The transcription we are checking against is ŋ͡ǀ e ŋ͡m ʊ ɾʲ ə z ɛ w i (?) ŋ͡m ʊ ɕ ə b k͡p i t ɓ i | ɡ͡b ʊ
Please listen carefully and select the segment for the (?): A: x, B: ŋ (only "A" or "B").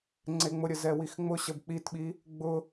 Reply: A